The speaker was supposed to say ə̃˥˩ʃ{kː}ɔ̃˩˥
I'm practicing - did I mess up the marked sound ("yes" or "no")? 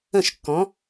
no